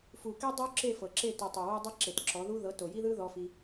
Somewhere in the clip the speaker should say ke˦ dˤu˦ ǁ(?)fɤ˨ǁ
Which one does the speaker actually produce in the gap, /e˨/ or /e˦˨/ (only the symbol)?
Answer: e˦˨